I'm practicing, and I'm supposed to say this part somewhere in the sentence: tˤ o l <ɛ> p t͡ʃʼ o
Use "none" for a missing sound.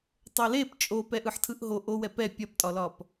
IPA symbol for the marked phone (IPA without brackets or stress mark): e